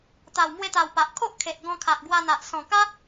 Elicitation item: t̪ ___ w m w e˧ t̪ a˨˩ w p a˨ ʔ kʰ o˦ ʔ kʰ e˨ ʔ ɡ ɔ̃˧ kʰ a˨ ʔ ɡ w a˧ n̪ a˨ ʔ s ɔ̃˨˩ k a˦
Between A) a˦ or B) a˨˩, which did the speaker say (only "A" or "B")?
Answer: B